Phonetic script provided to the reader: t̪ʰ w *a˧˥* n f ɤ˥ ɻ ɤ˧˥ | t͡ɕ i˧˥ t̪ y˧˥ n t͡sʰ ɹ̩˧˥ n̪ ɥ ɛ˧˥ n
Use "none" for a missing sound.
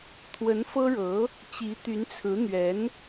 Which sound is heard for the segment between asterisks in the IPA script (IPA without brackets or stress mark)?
ə˧˥